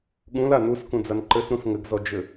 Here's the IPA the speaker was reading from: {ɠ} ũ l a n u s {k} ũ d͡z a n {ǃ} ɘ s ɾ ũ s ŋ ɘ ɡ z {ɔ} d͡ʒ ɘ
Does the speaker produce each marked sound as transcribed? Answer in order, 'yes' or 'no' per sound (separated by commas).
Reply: yes, yes, yes, yes